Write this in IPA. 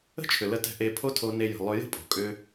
ə̤˦ t͡ʃʰ ʏ˨ l ə˧ t ɛ̤˧ ʔ e˧ pʰ o˦ tʰ o˧ n e˧ j ə̤˨ lˠ ʏ˧ j ə̤˦ pʼ o̤˨ kʼ ʏ˧

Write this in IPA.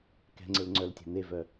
k ɛ̤ ŋ͡ǀ e l ŋ͡ǀ œ l tʲ æ̤ n̪ e v œ

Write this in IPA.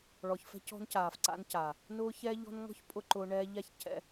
ɭ ɔ˨ ç f ɛ̤˦ c ɔ̤˦ n c aː˨ f ǀ a̰˦ n c a˨ | n ʊː˦ ç ɛ˦ ʎ ɔ̤˦ n ŋ ɔ̤˦ ç pʼ ʊ˧ ǃ ʊː˧ ɳ ɛː˧ ʎ a˦˨ ç c ɛ̰˧

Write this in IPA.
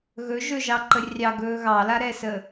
ɣ ɵ ʒ ɵ ʒ ɑ ǃ ə rʲ ɑ ɡ ɵː ɣ ɑ l a ɾ ɛː s ə

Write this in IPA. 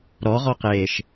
ɾ ɔ ʁ ɔ q eː ʃ

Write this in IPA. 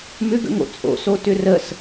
m ʏ ɡ ə̰ ŋ o̰ t͡sʼ o̰ s o t ʏ r ə s

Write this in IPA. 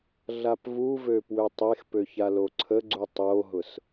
ɮ a p v u v ø p w ø tˤ e x p ø ç a l o ǀʰ ə ɡ͡ǀ u tˤ o ɦ ʊ s

